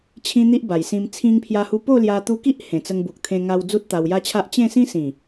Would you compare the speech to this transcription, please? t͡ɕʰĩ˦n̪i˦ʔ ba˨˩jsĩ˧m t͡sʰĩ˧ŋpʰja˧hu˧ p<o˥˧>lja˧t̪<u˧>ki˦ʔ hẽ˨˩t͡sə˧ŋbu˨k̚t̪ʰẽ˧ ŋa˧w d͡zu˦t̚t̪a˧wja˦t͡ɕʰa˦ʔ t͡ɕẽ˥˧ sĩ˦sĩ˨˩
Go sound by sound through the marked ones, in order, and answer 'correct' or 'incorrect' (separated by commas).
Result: correct, correct